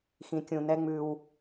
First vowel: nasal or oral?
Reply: nasal